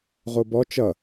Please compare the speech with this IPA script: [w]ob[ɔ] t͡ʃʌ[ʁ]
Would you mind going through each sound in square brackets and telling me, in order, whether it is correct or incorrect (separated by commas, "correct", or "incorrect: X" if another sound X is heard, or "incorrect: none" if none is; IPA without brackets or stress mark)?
incorrect: ʁ, correct, incorrect: none